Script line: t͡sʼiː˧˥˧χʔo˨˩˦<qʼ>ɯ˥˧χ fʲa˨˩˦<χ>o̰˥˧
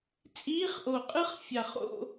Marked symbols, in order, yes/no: yes, yes

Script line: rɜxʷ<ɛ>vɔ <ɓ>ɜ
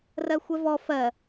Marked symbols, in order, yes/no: yes, no

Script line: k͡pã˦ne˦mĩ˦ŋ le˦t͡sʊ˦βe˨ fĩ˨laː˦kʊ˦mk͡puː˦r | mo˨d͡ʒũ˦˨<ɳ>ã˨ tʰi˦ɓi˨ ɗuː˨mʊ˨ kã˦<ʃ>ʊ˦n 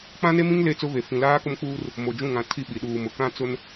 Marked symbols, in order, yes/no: no, no

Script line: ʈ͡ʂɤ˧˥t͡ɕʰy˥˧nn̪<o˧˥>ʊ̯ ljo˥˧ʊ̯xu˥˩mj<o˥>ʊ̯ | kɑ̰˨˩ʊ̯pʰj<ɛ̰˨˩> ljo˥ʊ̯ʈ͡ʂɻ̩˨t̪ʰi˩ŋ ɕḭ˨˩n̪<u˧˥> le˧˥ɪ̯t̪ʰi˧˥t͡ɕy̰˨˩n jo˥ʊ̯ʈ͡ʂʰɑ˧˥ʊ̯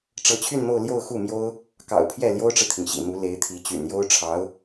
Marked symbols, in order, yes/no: no, yes, no, yes

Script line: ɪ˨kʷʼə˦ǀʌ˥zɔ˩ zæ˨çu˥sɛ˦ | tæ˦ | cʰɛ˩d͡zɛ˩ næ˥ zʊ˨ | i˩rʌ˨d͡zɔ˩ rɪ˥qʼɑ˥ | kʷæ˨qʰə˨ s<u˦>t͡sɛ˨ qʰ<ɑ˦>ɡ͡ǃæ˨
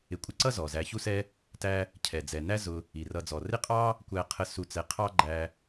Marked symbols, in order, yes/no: no, yes

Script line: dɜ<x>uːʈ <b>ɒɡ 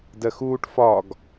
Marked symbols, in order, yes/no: yes, no

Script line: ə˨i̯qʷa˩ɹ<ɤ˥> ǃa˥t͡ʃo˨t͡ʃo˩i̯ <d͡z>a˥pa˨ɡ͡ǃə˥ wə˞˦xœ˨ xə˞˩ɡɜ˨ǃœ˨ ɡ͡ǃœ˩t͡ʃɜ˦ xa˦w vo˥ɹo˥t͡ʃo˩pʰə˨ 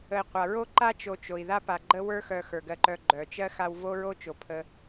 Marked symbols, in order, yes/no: no, no

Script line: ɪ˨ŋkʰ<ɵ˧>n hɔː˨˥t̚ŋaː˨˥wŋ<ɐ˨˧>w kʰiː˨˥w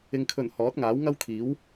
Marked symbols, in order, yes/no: no, no

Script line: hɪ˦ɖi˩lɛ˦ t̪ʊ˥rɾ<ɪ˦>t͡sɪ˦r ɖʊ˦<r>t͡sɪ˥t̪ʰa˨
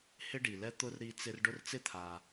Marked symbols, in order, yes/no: no, yes

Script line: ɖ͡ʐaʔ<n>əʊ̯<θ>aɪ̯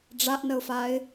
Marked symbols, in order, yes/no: yes, no

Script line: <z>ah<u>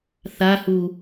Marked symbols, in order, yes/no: no, yes

